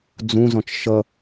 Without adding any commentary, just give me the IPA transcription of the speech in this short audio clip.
d͡z ũ z ɔ̃ t͡ʃ ʃ ʌ

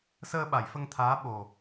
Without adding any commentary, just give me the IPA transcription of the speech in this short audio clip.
s əː˧ ɓ a˨˩˨ j f ə˧ ŋ t̪ʰ aː˧˥ ɓ o˨˩

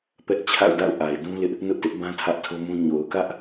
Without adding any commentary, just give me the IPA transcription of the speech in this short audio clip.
p ɛ˦ ʔ t͡ɕʰ a̰˦˨ ʊ̯ d a̰˦˨ ʊ̯ ʔ a˨ ɪ̯ d ũ˦ l ɪ˦ ʔ | n ʊ˦ ʔ t ɪ˦ ʔ b ã˦ tʰ ä˦ ʔ tʰ o˦ m ũ˦ ɲ o˨ ʊ̯ k ä˦ ʔ

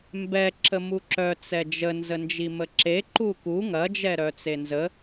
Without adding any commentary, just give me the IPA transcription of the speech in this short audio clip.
m b ɛ ǁ ə m u ǁ œ t͡s ɛ d͡ʒ ə n z ə n d͡ʒ i m ə ǁ e ǃ u k u ŋ ɐ d͡ʒ ɛ ɾ œ t͡s e n z ə

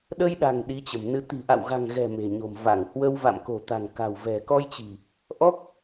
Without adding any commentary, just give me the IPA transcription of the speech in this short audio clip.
ɗ ə˧ j ɗ a̤˨˩ ŋ ɗ i˨˦ t͡ɕ ə̤˨˩ m n ɨ˨˦ t̪ i̤˨˩ ʔ a̰˧˨ w ɣ a̤˨˩ ŋ ɣ ɛ̤˨˩ m e̤˨˩ ɲ o̤˨˩ m v a˧˩ ŋ h w ə˧ w v a̰˧˨ m k o̤˨˩ t̪ a̤˨˩ ŋ k a̤˨˩ w v ɛ̤˨˩ k ɔ˧ j t͡ɕ i̤˨˩ | ʔ ɔ˦˥ k̚

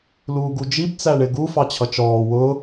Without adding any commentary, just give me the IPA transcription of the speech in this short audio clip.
l uː ɡ u d͡ʒ i b t͡s æ ɳ ɪ ɡ u f ɑ t͡ɕʰ ʌ t͡ʃ ɔː w ʊ

